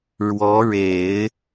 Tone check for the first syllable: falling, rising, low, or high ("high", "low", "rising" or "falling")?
rising